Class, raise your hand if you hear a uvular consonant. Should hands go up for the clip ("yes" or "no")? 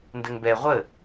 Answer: yes